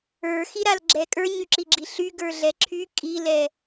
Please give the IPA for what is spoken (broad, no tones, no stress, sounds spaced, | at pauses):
ə˞ x i ɾ a l ɡ͡ǁ ɛ kʼ ə˞ ɲ y ǁ i ɡ͡ǁ i ɬ y ɡ ə˞ ɮ ɛ ǁʰ y kʼ i l ɛ